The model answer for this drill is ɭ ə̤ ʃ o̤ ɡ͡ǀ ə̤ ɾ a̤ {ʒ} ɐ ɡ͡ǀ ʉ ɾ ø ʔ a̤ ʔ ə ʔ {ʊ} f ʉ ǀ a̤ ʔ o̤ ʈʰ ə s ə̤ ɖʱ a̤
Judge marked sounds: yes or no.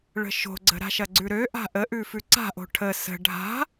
no, no

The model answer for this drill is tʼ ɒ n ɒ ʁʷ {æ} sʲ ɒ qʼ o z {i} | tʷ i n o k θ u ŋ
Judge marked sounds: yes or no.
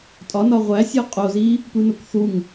yes, yes

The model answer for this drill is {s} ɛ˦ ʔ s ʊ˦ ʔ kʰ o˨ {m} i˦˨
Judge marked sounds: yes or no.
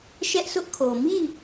no, yes

